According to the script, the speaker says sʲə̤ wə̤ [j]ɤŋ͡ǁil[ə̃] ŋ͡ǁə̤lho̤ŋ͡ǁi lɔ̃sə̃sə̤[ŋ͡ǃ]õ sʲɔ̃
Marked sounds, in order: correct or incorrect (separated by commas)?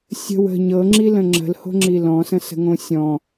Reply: incorrect, correct, incorrect